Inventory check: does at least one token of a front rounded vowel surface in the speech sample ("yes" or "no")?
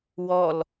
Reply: no